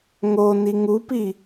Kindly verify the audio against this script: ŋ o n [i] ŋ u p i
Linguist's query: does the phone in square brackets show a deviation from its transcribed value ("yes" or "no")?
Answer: no